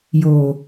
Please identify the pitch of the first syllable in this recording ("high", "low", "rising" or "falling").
low